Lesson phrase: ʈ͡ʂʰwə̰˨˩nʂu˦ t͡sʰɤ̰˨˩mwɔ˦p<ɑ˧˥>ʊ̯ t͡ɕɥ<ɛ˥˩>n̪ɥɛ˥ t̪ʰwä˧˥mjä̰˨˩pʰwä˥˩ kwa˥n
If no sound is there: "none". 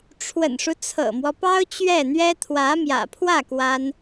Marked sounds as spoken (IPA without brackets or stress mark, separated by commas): ɑ˥, ɛ˥˩